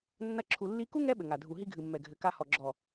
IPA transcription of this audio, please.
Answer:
nː ɐ˦ ǁʰ u˧ lː i˦ k u˦ ŋ ɛ˦ ɓ ɘ˨ ŋ a˨ dʱ u˨ ɦ i˧ ɡʱ ɨ˨ mː ɛ˨ ɡʱ ɘ˨ k a˧ h ɔ˨ ɡ͡ǁ ɔ˨

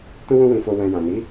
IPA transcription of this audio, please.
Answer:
t ũ˦ w ũ˦ w ĩ˧ f o˧ w ɛ̃˨ j ã˨ n i˨˦

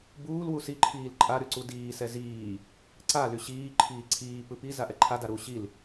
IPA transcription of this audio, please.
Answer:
b uː l w u s i ǃʰ iː l ǃʼ a ɾ y ǀ u d iː s ɛ z iː | ǀ a l y ɕ iː ǃʰ iː ǀʰ iː p ɯ p i z a ʔ ɛ ǃʰ a d a ɾ u ɕ i l

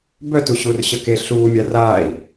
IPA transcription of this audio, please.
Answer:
b œ t u ɕ uː r ɕ ə k e ɬ uː mʲ a r aː i̯

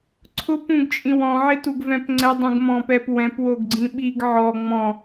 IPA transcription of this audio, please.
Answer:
ǀʰ ʊ p ũ ɡ t͡ʃʼ ĩ w ɔ̃ ʕ ɪ t u ɡ v ɛ̃ p ŋ͡ǀ ɛ dˤ ũ ɡ m ɔ̃ p ɛ p w ɛ̃ p w o ɡ ɡ͡ǀ ĩ ɓ i ɡ ʕ ɔ ŋ͡m ɔ̃

